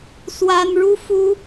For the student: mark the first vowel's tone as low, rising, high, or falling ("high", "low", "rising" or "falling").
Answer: high